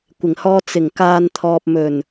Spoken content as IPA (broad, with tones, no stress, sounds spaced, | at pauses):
kʷ ɪ˨˩ ŋ h ɔː˧ t͡s ɪ˨˩ ŋ k aː˨ n t̪ʰ ɔː˨ p̚ m ɵ˨˩ n